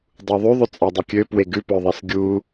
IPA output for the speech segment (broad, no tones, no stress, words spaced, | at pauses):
dˤuðˤy ðˤʉt͡sʼɑdˤukʲø pweɡʉ pœðˤesɡʲu